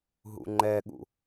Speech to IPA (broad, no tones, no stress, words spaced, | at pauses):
ɦṵŋ͡ǃɛɠṵ